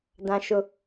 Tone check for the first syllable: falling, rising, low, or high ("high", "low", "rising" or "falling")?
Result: high